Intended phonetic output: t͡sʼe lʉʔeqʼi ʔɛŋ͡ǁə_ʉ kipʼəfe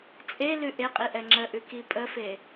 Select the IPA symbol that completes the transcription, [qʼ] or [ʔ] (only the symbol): ʔ